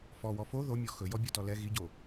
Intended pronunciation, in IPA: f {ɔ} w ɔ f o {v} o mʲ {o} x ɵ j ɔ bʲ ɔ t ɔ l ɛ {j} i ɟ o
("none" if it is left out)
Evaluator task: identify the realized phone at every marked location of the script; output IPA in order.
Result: ɔ, ð, ɔ, ɣ

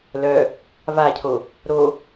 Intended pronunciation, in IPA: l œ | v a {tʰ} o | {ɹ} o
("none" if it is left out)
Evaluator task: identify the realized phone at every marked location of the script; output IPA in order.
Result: cʰ, ɾ

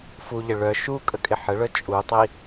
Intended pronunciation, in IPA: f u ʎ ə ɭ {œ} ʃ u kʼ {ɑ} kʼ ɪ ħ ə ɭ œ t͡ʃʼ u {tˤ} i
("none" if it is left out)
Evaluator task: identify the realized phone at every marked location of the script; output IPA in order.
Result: œ, ə, tˤ

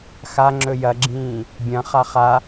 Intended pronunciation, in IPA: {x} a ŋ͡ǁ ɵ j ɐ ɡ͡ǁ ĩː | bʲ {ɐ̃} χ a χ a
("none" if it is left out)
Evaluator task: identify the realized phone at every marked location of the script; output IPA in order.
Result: x, ɐ̃

